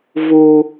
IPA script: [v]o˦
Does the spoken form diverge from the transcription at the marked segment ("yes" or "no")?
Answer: no